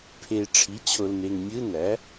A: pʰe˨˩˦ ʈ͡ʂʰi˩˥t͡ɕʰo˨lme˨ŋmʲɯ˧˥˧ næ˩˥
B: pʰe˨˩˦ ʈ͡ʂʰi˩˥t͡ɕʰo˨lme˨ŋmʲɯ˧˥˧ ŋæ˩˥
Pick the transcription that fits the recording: A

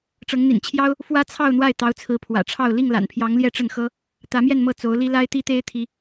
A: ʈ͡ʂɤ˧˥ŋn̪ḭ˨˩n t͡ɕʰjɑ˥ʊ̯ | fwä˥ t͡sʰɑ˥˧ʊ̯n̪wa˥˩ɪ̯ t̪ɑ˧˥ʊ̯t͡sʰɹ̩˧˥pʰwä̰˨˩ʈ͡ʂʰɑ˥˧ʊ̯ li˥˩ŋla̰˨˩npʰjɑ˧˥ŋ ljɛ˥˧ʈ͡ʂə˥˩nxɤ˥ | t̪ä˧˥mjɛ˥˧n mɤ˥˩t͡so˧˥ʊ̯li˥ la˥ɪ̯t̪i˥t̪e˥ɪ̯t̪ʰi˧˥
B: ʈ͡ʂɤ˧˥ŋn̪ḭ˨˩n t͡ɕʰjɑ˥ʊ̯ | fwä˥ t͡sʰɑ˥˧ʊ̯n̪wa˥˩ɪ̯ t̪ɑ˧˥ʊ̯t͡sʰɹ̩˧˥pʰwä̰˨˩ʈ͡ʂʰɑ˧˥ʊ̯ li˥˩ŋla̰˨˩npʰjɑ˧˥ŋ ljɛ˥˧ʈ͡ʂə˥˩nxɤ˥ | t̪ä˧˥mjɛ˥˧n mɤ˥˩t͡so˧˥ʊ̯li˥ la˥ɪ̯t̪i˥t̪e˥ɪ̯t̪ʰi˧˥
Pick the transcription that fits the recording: A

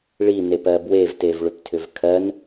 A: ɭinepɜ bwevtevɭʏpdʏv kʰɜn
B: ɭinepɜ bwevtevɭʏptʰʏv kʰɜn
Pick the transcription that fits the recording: B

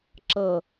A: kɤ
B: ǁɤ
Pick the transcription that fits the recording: B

